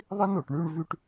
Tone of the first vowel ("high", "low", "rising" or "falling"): high